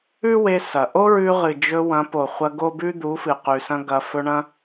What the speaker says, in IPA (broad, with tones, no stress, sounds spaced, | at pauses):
ʉ˦ w e˧ s ɐ˨ ʔ o˦ ɹ ʉ˧ ʁ ɨ˨ d͡ʒ ɵ˧ w ɐ̃˨˦ p o˨ χʷ ɐ˧ ɡ o˦ b ʉ˦ d̪ u˨˦ f ɨ˨ q ʉ˨ s ɐ̃˧ ɡ ɐ˧ f ɵ˧ ɳ ɐ̃˦